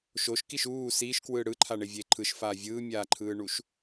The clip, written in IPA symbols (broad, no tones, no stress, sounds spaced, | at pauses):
ʃ o ʃ k i ʃ uː s iː ʃ k w ɯː ɽ ɯ ǃʰ a ɳ e vʲ e ǃʰ ɯ ʃ f aː vʲ ɯː mʲ aː ǃʰ ɯː ɳ u ʃ